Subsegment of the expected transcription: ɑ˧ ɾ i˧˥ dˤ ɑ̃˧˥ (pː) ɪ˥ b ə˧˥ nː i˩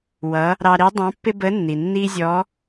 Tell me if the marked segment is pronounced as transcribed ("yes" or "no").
yes